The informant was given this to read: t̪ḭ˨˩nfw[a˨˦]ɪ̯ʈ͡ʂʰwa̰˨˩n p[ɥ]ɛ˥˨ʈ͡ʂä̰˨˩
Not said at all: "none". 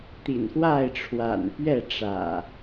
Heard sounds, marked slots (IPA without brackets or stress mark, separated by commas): a˥˨, ɥ